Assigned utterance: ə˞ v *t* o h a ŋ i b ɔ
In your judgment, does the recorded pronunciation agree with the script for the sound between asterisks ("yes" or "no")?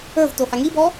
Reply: yes